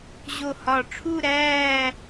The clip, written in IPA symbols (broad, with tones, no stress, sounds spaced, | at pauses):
ʑ o˧˩ h ɒ˧˩ ʈ͡ʂʰ u˥˧ ɾ æː˥˧